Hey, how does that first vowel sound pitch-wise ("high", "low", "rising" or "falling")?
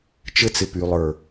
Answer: high